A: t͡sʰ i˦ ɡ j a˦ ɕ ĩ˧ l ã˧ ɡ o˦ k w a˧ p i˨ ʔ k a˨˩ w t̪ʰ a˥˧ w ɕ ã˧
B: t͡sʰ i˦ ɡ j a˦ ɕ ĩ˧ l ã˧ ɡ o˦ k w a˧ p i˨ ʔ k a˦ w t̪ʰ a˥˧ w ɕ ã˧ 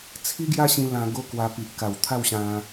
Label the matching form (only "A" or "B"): A